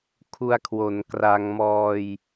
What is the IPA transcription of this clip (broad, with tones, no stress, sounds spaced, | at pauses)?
kʰ u˧ a̯ kʰ w o˩˦ n k r a˧ ŋ m ɔː˧ j